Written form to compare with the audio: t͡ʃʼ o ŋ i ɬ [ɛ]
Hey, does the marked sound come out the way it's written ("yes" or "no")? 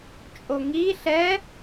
yes